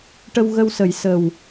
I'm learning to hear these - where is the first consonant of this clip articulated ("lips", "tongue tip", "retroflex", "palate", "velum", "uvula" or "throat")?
retroflex